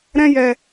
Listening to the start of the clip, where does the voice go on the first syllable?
high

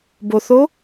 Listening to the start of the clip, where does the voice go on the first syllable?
low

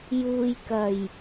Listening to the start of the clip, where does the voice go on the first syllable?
low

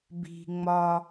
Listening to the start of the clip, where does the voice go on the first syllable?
high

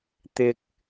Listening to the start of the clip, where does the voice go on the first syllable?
high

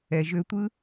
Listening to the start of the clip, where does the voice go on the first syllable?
low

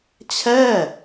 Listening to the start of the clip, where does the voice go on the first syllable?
falling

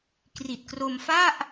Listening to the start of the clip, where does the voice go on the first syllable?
low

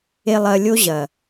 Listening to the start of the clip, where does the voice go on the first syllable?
low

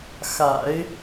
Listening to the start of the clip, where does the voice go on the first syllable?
low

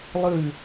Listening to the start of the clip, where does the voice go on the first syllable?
falling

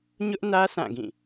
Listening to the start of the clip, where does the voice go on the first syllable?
high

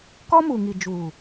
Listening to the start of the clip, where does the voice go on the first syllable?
high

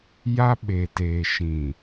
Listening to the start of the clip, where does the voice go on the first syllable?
high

